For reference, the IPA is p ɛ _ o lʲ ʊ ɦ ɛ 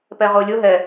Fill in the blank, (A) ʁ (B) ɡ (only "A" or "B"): A